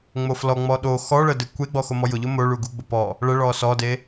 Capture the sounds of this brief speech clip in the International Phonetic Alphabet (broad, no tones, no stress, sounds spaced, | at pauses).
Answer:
ŋ͡m o f l ɔ ŋ͡m ɔ ɗ o x ɔ ɭ ə d e kʷ e ɡ͡b ɔ x o m ɔ j ʊ ʎ ʊ m o ɭ u ɡ u ɡ͡b ʊ p ɔ | ɭ ə ɭ ɔ s ɔ d e